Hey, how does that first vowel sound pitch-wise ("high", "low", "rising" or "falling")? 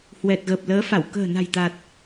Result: low